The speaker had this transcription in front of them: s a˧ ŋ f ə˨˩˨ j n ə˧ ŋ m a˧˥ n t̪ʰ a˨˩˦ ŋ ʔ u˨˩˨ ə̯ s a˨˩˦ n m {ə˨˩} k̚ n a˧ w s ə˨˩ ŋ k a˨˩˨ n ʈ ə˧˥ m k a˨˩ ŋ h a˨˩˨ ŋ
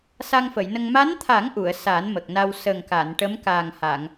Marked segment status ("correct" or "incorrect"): correct